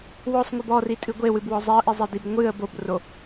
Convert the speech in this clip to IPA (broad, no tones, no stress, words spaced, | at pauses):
wɔsˤŋʷɨb ɔritʼɨ ɡʷewɨbwɔ zˤeə̯ʔizˤedib ŋʷɨə̯ bobro